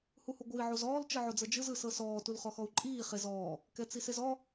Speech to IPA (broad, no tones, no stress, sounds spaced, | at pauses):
h u h u ɡʷ ɯ i̯ ʕ u z ɔː l t͡ʃ ɯ ʕ o d͡z ɤ d͡ʒ ɯ z ɯ s ɤ s ɔː t u l χ ɔ x ɔ u̯ ǃʼ iː χ e z ɔː | k ɛ t͡s i s e z ɔ